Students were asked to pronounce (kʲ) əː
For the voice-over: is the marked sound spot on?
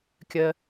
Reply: yes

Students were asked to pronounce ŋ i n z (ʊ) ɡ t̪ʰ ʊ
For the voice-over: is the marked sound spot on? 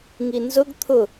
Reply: yes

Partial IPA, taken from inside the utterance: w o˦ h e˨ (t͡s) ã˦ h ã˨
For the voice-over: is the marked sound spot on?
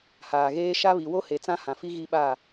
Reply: yes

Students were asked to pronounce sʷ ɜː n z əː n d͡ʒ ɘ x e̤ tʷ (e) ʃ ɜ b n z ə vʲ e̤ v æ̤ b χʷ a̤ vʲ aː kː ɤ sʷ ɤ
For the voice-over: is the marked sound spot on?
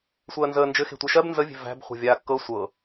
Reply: yes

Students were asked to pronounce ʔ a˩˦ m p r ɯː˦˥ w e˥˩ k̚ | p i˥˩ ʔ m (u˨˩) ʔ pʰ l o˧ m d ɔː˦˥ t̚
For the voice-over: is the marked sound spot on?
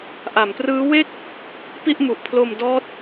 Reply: yes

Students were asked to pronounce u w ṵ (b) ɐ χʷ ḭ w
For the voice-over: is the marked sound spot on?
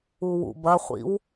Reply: yes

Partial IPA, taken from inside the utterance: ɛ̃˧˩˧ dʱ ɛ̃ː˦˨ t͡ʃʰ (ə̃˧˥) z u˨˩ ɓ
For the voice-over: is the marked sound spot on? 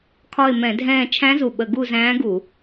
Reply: no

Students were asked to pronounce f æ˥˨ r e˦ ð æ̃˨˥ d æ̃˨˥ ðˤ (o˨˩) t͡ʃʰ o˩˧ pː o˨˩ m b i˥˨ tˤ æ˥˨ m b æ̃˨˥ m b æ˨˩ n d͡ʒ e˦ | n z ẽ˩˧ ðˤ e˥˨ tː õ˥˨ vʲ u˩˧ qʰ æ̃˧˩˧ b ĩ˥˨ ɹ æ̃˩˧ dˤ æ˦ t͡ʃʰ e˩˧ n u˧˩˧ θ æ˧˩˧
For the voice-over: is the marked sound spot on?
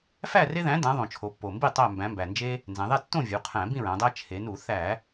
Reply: no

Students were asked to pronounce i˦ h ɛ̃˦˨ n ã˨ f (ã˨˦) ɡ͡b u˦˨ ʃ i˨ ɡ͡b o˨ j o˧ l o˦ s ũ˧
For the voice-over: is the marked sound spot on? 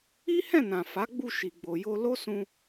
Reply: no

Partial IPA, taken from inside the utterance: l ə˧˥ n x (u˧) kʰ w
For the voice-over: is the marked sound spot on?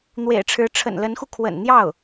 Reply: yes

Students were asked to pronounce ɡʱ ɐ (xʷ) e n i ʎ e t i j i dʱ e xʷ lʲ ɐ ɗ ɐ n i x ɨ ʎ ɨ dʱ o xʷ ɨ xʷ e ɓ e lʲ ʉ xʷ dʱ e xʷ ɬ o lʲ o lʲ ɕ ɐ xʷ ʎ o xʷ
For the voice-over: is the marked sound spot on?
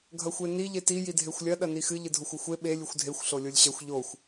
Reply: yes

